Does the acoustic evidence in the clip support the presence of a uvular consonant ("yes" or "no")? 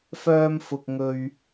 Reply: no